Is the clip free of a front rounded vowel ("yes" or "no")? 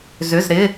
no